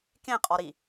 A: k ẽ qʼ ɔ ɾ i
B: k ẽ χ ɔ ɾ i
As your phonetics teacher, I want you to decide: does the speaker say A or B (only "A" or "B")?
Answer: A